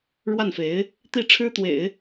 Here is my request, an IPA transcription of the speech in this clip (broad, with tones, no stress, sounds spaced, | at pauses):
ɻ w a˥˩ n f e˧˥ ɪ̯ | t̪ i˥˩ ʈ͡ʂʰ ɻ̩˥ t̪ w ḛ˨˩˦ ɪ̯